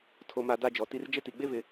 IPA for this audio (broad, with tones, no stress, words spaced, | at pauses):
tʰo˨ma˨ da˦d͡ʒɔ˨ ti˦r d͡ʒɪ˦ti˨ɡ͡be˦vɪ˨